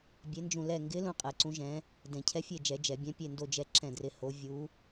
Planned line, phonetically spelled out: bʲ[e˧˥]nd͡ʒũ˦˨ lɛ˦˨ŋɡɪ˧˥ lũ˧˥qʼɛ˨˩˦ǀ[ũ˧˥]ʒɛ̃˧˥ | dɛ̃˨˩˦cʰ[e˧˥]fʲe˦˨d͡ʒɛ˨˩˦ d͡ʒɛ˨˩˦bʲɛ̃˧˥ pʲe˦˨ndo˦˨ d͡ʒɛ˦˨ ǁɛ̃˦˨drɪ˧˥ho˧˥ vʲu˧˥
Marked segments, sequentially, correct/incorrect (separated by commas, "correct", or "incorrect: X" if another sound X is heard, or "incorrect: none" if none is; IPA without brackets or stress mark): correct, correct, incorrect: ɛ˧˥